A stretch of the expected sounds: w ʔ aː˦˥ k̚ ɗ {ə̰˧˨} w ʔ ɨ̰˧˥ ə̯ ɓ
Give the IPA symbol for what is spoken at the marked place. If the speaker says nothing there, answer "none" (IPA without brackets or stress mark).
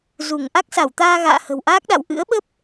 a̰˧˨